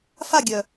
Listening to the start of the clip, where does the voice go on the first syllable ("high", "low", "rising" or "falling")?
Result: falling